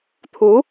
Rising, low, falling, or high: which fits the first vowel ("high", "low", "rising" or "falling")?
rising